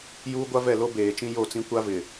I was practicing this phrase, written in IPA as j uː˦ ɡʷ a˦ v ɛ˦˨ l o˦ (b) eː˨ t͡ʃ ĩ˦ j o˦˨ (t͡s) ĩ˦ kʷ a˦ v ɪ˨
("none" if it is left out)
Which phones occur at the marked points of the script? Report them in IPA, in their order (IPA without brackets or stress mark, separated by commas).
b, t͡s